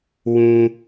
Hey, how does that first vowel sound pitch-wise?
low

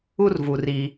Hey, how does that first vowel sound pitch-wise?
high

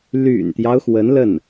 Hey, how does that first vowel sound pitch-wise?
low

